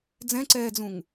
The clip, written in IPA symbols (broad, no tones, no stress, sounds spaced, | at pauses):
d͡z ɛ̃ ǀ ɛː d͡z ũ ŋ